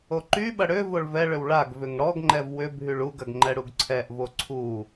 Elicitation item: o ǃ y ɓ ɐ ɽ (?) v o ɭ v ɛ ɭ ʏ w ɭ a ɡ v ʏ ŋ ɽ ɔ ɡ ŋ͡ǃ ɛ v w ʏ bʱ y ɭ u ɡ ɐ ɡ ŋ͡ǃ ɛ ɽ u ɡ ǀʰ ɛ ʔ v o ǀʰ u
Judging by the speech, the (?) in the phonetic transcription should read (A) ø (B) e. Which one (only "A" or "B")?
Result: A